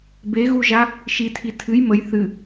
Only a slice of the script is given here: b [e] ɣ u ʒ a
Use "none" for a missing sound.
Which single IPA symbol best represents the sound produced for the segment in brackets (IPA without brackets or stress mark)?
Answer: e